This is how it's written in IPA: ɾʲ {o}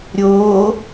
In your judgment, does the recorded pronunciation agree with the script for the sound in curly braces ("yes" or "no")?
yes